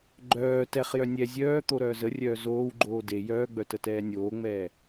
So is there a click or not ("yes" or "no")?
yes